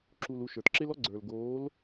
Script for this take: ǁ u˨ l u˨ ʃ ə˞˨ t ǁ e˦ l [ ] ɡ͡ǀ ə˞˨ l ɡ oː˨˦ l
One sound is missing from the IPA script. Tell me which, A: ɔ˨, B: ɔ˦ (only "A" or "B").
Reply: B